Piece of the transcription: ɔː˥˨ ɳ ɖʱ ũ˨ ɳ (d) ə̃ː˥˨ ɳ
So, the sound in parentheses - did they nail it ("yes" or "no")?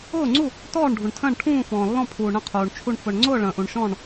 no